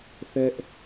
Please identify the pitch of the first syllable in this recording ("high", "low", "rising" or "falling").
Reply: high